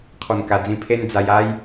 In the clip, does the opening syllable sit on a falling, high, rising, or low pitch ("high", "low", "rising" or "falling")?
low